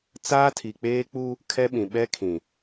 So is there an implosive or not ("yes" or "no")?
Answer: yes